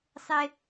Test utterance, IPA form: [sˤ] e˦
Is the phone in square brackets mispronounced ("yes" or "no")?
no